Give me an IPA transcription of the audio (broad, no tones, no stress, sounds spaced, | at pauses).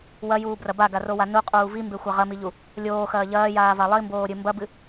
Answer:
w ɐ j uː b r ɐ b a ɡ a r o w a n u qʼ uː v i m b e xʷ a ʁ ɐ m i ʎ u | lʲ oː x ɐː ʎ ɐː j aː v a lˠ i m b oː ɾʲ ɨ m b ɐ b ɨ